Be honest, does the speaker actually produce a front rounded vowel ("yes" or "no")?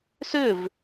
yes